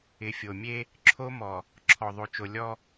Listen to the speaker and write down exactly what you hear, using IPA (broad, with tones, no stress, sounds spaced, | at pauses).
ɪ˨ fʲ o˨ mʲ e˦ | ǁʰ o˦ m ɔ˨ | ǁʰ ɔ˨ ðˤ o˨ t͡ʃ o˨ lʲ ɔ˦